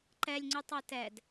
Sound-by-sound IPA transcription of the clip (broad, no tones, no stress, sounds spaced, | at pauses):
ǃ ɛ lʲ ŋ͡ǀ y tˤ o t ɛ d